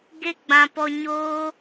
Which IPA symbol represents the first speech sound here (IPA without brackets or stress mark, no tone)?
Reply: ɡ